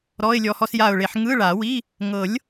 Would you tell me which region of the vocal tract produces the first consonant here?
tongue tip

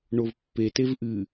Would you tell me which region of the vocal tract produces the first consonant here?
retroflex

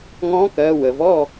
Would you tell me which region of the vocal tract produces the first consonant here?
velum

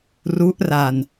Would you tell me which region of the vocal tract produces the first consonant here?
tongue tip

